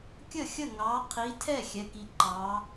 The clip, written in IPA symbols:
kʲ ə˥˩ xʲ ə˥˩ ŋ ɑ˨˦ qʰ i˨˦ tʰ ɛ˥˩ xʲ ɛ˨˦ k i˨˦ ǃ ɑ˨˦

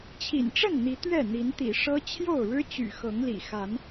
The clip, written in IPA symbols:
t͡ɕʰ ḭ˨˩ n ʈ͡ʂ ə˥˨ n n̪ i˨˦ t̪ ɥ ɛ˥˨ n̪ i˨˦ n t̪ ḭ˨˩ ʂ ɤ˦ t͡ɕʰ j o˥˨ ʊ̯ ɻ ɻ̩˦ t͡ɕ y̰˨˩ x ɤ˨˦ ŋ l ḭ˨˩ x a˨˦ n

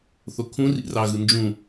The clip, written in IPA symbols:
θ o kʰ ũ r ḭ r ɑ ɣ ɯ n d͡ʒ ũ

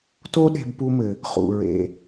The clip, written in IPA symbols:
t o˥ ɗ e̤˧ b p u˧ m ɘ˩ | χ ṵ˩ ɹ ḛ˩

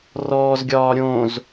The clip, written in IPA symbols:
r ɔː z ɡʲ ɒː ɾʲ õ z

